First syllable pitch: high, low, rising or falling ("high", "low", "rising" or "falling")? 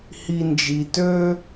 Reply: low